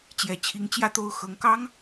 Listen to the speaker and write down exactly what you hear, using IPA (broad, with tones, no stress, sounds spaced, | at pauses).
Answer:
t͡ɕ j ɛ˨˩ t͡ɕʰ i˧˥ ŋ t͡ɕ j ä˥˧ t̪ o˥˩ ʊ̯ x ɤ˧˥ ŋ k ɑ˥ ŋ